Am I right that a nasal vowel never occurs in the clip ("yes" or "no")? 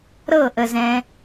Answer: no